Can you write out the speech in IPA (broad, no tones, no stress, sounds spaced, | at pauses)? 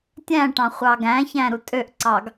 tʲ æ̃ ʈ ɑ̃ χʷ ɑ ɡ æ̃ ç æ̃ ɾ u tʼ ø ʔ ǀ ɑ ɡ